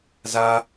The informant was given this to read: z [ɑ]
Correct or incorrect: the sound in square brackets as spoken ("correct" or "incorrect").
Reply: incorrect